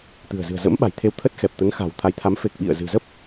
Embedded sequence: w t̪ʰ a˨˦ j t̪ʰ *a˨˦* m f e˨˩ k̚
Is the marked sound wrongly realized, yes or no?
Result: no